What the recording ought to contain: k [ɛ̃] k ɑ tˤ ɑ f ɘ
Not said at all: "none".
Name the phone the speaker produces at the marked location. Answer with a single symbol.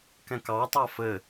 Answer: ɛ̃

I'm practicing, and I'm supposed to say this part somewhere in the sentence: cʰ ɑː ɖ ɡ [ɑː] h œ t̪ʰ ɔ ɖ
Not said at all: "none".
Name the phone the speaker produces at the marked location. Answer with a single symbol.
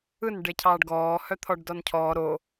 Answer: ɔː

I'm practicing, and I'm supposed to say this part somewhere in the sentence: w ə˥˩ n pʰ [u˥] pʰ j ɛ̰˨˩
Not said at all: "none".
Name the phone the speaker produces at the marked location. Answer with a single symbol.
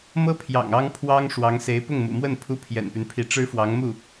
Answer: u˥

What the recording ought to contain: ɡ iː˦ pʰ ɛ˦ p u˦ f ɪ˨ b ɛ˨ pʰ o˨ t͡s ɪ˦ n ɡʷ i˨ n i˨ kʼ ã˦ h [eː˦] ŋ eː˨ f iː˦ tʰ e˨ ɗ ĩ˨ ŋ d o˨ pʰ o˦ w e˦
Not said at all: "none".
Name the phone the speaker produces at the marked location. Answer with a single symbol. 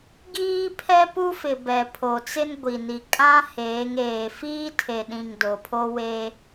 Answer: eː˨˦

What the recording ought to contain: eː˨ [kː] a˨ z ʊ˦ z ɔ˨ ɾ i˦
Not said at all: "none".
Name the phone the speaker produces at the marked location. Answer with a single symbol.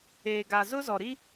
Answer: ɡ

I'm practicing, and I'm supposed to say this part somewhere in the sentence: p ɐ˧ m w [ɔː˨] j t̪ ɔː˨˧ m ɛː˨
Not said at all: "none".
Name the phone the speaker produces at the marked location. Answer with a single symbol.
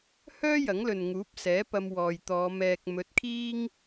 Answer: ɔː˨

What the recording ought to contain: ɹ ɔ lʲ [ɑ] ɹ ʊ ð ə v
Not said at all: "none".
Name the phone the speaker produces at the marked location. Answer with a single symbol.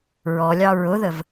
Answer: ɑ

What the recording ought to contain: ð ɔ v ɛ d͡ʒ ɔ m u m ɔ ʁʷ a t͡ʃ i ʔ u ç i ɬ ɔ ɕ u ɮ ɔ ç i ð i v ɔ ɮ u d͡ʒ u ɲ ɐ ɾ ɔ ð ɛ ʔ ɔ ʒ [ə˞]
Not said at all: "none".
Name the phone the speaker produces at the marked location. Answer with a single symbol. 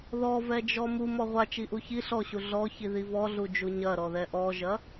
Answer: ɐ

